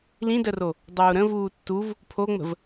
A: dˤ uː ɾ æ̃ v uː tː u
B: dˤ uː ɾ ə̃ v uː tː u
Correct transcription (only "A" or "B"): B